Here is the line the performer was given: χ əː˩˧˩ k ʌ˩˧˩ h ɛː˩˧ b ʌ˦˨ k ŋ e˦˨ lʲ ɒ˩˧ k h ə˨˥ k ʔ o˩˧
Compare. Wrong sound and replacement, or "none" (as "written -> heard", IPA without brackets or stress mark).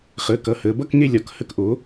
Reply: ɛː˩˧ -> əː˩˧